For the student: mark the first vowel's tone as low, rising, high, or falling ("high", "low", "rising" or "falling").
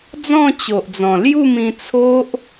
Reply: falling